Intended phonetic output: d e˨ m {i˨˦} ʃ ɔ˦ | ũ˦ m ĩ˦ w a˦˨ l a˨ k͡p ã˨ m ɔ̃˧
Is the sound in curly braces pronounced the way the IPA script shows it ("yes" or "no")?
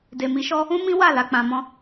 yes